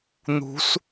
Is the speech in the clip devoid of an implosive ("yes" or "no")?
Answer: yes